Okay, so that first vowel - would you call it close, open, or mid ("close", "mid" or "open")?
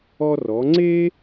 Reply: mid